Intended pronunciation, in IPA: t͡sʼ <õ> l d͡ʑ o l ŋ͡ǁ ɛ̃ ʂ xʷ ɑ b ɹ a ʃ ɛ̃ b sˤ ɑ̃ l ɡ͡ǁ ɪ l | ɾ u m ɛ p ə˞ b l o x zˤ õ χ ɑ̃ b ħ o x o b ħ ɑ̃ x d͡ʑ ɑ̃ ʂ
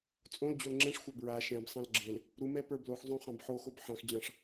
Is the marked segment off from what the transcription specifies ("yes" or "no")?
no